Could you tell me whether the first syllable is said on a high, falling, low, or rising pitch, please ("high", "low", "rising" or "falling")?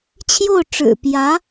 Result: falling